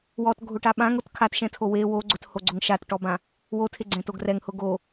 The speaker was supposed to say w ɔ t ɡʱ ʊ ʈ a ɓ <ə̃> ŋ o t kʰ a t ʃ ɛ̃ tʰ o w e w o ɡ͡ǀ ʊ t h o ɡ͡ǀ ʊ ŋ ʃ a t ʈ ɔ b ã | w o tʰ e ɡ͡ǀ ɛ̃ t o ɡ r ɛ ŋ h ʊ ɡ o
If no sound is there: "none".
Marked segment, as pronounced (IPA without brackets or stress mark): ã